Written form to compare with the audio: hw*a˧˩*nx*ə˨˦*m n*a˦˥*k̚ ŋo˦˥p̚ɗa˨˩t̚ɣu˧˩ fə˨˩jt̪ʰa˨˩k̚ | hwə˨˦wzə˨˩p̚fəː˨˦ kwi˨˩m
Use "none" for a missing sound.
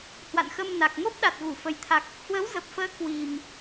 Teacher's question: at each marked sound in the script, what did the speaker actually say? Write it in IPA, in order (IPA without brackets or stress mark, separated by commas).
a̰˧˨, ə˧, a˨˩